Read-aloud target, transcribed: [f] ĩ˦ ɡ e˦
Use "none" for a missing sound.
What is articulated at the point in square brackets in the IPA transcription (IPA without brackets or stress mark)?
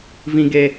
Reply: v